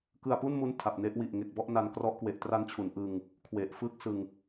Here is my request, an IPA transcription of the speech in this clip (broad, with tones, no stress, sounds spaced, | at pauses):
k ɯ˧ a̯ p u˥˩ n m u˦˥ n tʰ a˨˩ p̚ n e˦˥ ʔ w i˨˩ ʔ ŋ e˨˩ k̚ b ɔ˥˩ ʔ n a˧ n k r ɔ˦˥ ʔ k w e˨˩ ʔ t r a˦˥ n t͡ɕʰ u˩˦ n ʔ ɯ˧ ŋ | kʰ w e˨˩ ʔ f ɯː˥˩ k̚ s ɯ˧ ŋ